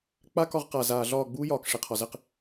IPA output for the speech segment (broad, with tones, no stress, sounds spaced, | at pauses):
k͡p a˦ k ɒ˧ ʁ q a˨ z aː˨ ɮ ɒː˦˨ ɡ͡b uː˦ j ɒː˨ k ʂ e˨ qʰ ɒ˨ z ɛ˧ q